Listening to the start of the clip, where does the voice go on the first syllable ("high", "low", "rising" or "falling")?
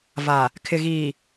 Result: low